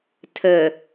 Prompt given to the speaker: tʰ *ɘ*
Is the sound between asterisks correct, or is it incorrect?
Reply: correct